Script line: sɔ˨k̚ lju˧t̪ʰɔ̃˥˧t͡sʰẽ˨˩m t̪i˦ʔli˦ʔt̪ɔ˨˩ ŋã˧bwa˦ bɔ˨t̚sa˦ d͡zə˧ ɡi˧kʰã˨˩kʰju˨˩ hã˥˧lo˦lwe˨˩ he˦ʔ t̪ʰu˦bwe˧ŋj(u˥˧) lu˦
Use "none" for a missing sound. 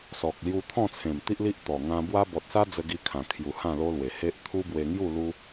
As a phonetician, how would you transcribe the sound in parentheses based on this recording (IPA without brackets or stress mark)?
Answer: u˥˧